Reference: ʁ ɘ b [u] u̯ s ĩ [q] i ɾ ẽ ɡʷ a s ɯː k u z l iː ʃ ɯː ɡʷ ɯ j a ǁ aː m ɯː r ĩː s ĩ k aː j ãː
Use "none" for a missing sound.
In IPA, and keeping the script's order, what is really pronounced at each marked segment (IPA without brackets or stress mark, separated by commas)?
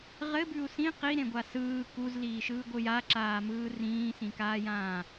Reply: ʉ, q